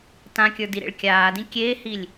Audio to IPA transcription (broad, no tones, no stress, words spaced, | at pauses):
tãkʲə˞ diɾḛɭkʲaːdĩ kʲeːhilʲ